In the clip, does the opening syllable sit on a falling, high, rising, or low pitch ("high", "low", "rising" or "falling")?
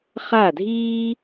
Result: falling